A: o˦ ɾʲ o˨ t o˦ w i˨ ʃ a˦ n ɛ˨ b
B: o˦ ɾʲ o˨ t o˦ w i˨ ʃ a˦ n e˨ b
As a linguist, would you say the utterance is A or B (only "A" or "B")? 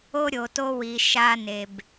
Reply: B